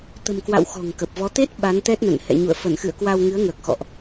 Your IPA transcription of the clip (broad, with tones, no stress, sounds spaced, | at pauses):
t̪ ə̤˨˩ m k w a̰˧˨ w x ɔ̤˨˩ ŋ k ə˨˩ p̚ v ɔ˨˦ t̪ e˦˥ t̚ ɓ a˨˦ n t̪ ɛ˦˥ t̚ n ə̰˧˨ n h ɛ̰˧˨ ɲ ṵ˧˨ ə̯ f ə˧˩ n x ɨ̰˧˨ ə̯ k w a˧ w ŋ ɨ˨˦ ə̯ ŋ əː˨˩ k̚ x ɔ̰˧˨ ʔ